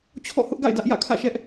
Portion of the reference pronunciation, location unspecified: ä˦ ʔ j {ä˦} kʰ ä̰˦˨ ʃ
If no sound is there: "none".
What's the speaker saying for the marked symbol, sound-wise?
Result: ä̰˦˨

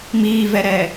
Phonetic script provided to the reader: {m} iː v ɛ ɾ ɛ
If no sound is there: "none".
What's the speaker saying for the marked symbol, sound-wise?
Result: m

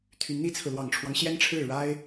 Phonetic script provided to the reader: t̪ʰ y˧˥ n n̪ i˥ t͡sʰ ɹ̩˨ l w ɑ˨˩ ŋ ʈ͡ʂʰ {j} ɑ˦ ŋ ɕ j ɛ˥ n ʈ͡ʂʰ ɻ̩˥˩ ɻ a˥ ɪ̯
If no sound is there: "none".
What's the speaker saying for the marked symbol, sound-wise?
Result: w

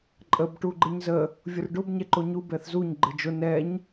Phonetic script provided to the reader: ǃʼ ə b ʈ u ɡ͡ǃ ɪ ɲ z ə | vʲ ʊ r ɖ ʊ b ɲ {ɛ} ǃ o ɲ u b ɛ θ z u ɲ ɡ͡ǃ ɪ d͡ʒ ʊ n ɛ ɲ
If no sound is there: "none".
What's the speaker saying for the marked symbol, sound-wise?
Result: ɛ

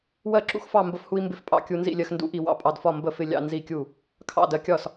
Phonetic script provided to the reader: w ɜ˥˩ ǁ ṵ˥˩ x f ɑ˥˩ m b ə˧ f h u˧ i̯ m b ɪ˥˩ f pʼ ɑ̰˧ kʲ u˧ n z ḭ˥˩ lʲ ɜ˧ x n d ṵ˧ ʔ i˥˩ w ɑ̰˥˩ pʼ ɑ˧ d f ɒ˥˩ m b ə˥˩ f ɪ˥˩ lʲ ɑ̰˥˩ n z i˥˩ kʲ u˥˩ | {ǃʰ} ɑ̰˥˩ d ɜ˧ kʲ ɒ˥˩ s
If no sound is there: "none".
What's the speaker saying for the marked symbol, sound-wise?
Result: kʰ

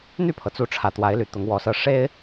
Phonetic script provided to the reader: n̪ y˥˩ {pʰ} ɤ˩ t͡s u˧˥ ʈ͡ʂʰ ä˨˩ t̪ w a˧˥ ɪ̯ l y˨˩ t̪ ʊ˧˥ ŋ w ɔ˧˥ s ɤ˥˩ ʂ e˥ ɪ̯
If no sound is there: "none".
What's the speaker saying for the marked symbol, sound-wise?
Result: pʰ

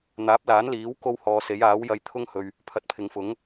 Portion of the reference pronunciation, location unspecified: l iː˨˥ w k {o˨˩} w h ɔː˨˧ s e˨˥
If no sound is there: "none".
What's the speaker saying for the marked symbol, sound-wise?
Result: o˥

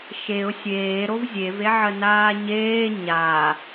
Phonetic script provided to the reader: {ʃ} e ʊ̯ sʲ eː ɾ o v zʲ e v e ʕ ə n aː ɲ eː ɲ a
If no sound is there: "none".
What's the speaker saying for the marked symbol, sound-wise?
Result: ʃ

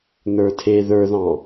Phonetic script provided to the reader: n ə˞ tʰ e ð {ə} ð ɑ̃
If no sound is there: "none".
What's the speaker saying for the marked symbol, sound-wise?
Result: ə˞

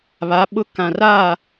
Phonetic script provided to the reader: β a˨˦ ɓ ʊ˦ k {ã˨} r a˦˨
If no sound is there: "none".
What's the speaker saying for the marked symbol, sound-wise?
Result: ã˨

